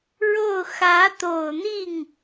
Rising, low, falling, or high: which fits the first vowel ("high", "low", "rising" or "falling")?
falling